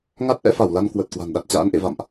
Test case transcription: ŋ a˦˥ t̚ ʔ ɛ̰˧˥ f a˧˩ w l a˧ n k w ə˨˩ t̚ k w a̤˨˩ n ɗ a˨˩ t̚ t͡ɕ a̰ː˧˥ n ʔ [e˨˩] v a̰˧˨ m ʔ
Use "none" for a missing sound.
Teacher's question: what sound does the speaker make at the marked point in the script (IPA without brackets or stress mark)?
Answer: ḛ˧˨